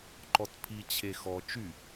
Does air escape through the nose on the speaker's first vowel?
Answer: no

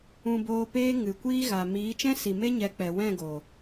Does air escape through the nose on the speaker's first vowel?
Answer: yes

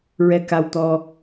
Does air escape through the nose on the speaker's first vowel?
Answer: no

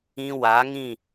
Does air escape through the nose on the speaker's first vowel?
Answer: yes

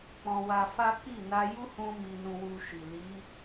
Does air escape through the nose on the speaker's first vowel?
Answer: yes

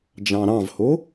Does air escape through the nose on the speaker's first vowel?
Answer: yes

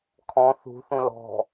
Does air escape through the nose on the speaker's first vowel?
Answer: yes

